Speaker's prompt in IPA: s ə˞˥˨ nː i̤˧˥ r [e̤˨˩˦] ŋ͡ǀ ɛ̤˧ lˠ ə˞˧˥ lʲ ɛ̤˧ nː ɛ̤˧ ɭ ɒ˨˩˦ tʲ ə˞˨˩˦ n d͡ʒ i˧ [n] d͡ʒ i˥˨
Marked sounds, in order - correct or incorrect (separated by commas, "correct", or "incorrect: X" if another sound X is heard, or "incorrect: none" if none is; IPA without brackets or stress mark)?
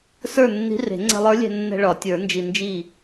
correct, correct